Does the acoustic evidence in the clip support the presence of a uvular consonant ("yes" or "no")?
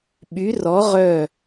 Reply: yes